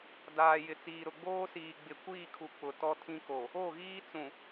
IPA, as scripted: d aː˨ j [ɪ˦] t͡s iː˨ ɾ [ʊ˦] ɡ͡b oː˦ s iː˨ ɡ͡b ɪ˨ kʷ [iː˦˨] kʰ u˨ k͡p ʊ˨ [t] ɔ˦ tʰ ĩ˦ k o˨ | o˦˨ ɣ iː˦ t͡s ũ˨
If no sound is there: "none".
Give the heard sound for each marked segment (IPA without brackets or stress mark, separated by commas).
ɪ˨, ʊ˨, iː˦˨, t